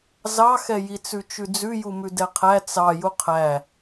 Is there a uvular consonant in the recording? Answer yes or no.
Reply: yes